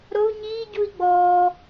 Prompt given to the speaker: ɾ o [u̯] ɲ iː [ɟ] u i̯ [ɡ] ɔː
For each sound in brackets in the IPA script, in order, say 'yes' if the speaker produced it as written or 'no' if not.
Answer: yes, yes, no

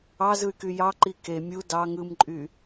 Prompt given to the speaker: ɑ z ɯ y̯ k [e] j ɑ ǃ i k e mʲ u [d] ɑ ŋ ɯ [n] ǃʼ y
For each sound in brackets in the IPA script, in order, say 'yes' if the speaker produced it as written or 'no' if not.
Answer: no, yes, no

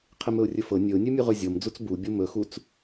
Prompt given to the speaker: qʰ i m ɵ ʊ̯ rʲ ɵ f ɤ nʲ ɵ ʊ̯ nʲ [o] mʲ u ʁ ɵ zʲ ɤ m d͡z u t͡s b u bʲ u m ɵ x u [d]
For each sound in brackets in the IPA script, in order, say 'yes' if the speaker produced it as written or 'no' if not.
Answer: no, no

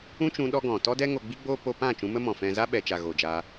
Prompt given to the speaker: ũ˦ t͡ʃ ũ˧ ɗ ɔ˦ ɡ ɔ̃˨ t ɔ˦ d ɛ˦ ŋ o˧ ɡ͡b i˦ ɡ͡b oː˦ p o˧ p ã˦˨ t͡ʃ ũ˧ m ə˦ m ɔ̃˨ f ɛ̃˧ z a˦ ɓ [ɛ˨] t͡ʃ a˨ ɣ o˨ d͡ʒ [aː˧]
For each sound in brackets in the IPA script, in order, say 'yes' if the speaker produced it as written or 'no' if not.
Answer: yes, yes

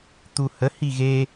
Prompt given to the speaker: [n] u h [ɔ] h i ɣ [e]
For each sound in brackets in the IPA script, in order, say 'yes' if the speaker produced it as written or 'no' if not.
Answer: no, no, yes

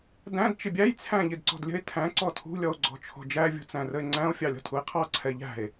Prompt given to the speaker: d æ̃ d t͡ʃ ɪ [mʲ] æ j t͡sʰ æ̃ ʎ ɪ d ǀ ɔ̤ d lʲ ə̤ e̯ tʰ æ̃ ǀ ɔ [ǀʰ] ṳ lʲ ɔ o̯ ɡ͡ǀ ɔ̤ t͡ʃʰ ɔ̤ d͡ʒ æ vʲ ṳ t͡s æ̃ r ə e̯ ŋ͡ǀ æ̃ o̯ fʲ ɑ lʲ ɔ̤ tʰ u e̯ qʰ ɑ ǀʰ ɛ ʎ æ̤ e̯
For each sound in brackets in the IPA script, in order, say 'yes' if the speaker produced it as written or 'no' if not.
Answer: no, no

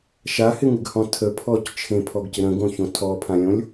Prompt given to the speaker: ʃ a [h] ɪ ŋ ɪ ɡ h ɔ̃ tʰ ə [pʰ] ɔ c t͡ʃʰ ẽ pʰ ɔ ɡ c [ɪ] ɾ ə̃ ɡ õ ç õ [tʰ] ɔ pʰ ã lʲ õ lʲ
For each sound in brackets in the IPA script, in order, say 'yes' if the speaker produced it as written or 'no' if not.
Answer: yes, yes, yes, yes

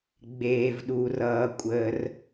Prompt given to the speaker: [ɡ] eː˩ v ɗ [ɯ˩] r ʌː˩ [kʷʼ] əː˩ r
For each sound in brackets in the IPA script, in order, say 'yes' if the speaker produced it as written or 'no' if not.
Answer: no, no, yes

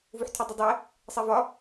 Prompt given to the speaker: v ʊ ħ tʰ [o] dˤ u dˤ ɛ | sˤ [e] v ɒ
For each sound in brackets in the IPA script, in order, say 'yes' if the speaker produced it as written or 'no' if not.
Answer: no, no

